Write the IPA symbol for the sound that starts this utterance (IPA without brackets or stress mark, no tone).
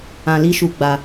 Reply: ã